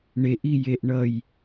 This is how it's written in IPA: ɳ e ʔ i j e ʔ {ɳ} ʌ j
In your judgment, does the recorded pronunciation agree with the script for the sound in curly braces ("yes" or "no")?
yes